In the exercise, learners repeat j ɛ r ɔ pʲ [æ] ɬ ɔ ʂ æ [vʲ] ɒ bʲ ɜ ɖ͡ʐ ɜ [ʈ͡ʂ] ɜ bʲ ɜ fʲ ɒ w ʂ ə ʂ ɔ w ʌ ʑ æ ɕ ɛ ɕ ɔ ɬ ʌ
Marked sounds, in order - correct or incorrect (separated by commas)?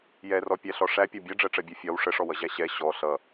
correct, incorrect, correct